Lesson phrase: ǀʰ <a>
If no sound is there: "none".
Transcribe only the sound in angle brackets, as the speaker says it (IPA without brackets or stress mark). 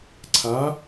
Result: a